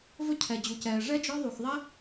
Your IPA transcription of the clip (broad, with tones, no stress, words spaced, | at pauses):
vɵ˥cʰɛ˧d͡ʑu˧cɛː˧ ʐɛ˥d͡ʒɔ˥ ðˤu˧xðˤɛ˥